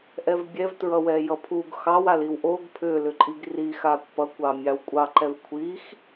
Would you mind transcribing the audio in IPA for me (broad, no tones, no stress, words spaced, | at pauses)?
ʔɛvbʲɛvtɹʌ wɛjʌpʰuɡ xɑwaliw ʔoɡ pʰʏːlʏǃʼiɡ rixaːkʷ pʌkʷɑ mʲɑwkʷʼɑǃɛv kʷʰix